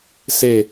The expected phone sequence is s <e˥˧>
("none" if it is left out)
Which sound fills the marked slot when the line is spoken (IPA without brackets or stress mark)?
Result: e˥˧